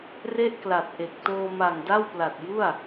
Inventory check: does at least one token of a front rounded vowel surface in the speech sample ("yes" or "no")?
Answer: no